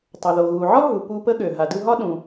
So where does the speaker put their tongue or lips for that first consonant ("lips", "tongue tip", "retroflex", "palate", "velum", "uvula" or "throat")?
tongue tip